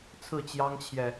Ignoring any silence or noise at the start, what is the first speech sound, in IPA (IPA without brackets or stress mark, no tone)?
t͡sʰ